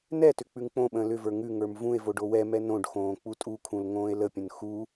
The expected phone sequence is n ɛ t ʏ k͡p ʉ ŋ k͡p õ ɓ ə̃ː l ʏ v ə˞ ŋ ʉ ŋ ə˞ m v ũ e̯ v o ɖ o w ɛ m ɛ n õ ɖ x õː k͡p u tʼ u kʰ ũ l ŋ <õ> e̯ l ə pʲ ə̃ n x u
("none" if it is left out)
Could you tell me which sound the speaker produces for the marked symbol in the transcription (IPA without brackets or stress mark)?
õː